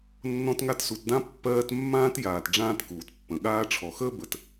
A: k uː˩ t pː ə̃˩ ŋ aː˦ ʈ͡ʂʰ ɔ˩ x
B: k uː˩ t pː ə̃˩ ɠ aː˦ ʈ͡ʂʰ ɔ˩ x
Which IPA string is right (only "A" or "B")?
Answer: B